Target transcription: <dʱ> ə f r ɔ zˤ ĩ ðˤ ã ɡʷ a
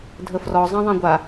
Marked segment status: correct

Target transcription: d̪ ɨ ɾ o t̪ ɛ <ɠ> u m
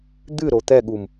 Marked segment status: correct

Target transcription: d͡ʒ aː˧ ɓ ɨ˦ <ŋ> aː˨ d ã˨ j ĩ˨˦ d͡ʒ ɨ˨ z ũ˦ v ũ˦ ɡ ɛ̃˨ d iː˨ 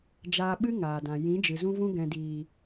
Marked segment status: correct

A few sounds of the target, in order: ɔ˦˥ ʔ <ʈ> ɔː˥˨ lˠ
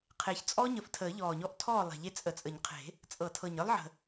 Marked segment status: incorrect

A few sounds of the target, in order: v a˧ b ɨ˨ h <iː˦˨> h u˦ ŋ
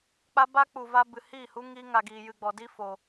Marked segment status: correct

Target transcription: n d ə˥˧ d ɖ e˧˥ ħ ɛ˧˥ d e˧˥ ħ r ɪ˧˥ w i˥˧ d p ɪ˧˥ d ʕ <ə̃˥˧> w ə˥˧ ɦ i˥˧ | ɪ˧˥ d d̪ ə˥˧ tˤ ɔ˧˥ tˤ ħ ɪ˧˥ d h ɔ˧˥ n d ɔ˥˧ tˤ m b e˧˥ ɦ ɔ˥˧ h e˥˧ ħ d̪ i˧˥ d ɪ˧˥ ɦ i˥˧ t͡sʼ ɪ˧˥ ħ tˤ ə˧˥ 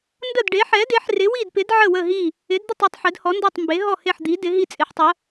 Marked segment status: incorrect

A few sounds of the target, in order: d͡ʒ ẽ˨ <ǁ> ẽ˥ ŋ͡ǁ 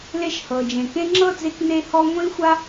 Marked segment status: incorrect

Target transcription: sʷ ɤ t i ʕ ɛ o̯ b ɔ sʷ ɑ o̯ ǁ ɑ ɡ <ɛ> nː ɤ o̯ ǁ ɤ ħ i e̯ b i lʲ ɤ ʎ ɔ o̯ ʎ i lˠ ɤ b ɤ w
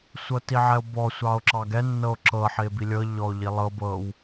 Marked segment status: correct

